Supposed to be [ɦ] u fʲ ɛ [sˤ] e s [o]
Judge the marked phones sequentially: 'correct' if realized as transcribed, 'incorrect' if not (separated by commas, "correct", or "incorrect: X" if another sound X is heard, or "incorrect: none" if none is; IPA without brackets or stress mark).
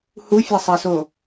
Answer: incorrect: h, correct, correct